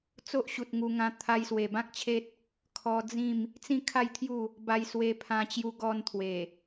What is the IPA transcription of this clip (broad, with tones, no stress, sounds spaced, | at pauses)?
t͡s o˦ ʔ ɕ u˨ t̚ ŋ u˧ ŋ ã˧ t̪ʰ a˧ j s w e˨˩ b ã˦ k̚ t͡ɕʰ e˦ t̚ | kʰ ɔ˧ d͡z ĩ˥˧ m | t͡s ĩ˥˧ kʰ a˥˧ j t̪ʰ j u˥˧ | b a˧ j s w e˧ pʰ ã˧ t͡ɕ j u˧ ɡ ɔ˧ n t̪ʰ w e˨˩